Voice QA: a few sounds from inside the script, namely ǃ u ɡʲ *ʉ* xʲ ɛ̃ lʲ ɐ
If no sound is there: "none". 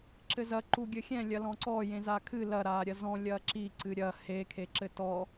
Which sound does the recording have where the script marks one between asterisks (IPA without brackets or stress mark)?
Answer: ɘ